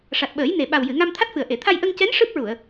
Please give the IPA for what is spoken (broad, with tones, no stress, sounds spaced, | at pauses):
ʂ a˨˩ t̚ ɓ əː˨˩˦ j n e˨˩ ɓ a˨˩ w j ɨ˨˩˨ ŋ a˧ m t̪ʰ a˦˥ t̚ f ɨ˨˩ ə̯ ʔ e˨˩˨ t̪ʰ a˧ j ʔ ə˧ ŋ c ɛ˧˥ n ʂ ɨ˦˥ p̚ ɹ u˨˩˨ ə̯